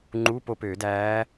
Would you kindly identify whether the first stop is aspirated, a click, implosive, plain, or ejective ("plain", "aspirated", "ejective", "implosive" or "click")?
click